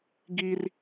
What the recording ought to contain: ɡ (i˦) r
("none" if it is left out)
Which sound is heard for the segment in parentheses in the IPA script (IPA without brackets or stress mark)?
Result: i˦